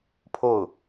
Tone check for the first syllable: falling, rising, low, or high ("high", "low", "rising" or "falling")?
falling